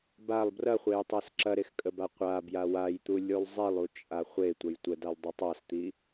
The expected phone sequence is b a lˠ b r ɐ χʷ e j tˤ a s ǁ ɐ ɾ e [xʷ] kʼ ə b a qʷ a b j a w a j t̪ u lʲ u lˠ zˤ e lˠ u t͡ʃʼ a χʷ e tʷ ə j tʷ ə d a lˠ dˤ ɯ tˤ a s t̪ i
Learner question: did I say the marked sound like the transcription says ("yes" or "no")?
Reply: no